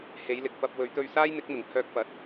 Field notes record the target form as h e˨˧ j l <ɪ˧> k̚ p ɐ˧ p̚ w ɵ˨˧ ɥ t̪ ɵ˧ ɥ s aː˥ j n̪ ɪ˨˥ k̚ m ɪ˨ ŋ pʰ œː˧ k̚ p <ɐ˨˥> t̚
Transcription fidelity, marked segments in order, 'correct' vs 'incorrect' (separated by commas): incorrect, correct